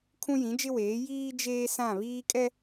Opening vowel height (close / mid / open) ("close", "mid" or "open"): close